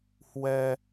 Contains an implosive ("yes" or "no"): no